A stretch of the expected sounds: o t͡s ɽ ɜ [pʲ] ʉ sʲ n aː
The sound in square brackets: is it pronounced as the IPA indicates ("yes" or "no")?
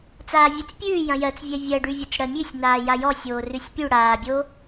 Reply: no